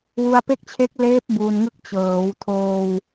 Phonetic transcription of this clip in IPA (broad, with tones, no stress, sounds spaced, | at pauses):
w u˧ a̯ p e˥˩ k̚ t͡ɕʰ e˦˥ k̚ l eː˦˥ p̚ b uː˧ n ŋ ɯ˦˥ k̚ t͡ɕ ɤː˩˦ w tʰ oː˧ w